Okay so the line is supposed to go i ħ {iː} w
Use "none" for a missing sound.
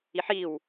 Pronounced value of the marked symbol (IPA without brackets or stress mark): iː